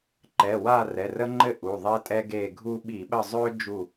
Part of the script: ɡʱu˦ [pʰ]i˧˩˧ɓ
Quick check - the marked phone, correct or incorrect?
incorrect